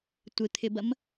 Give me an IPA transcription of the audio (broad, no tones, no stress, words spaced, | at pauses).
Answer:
tʷɪt̪ʰɪbɐm